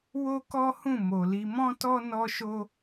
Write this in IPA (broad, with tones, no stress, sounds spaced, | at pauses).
w o˦ k ɔ˦ h ũ˦˨ m o˨ l i˧ m ɔ̃˦ t ɔ˦ n ɔ˦ ʃ o˦